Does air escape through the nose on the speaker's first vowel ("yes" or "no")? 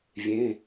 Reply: yes